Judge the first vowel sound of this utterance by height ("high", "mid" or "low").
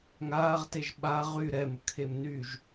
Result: low